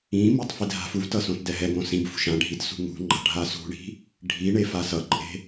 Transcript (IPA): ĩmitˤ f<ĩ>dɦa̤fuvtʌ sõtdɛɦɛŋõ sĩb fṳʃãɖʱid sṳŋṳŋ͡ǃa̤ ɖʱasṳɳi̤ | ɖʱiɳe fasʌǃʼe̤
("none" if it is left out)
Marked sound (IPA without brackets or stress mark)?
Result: i